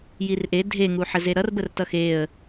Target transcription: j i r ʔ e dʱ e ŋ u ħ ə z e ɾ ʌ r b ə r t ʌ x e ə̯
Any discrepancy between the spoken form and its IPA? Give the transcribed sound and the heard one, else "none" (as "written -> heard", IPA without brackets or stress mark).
none